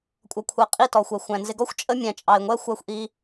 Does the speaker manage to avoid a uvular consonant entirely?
no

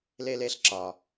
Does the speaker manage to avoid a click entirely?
no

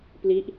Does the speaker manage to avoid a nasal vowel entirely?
yes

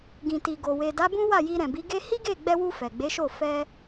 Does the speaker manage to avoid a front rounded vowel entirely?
yes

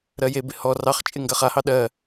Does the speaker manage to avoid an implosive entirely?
no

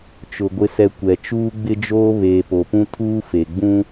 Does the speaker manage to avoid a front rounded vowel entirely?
yes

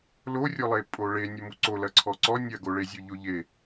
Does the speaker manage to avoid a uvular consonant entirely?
yes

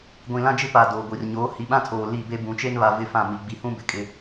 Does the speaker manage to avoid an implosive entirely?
no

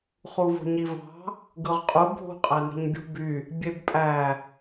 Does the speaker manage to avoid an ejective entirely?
no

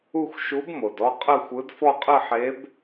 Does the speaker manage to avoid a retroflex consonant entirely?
yes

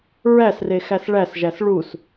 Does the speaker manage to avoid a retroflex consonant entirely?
no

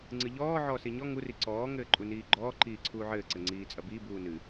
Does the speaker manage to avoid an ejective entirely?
no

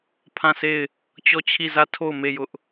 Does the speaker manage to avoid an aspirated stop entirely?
no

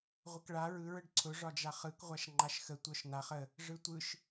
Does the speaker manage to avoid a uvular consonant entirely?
no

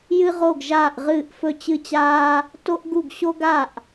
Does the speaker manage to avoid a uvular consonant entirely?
no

